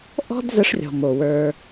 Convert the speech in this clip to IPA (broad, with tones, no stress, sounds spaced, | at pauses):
ʔ ɔ̤˦ d z ə˧ ʂ rʲ ɔ̤˨ m o˨ w ə˞˧